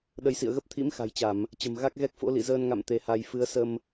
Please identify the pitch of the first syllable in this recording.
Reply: rising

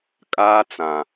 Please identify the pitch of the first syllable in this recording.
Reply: high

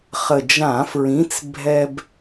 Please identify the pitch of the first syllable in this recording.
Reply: low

